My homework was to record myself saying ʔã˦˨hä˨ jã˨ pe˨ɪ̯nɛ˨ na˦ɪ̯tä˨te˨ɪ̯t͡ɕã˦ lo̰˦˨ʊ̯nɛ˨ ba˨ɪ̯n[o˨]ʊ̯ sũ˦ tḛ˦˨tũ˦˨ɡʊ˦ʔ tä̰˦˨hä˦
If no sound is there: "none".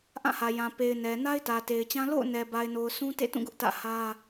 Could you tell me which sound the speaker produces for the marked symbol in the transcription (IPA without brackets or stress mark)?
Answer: o˨